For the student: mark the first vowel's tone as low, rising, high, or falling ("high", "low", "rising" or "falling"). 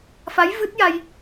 rising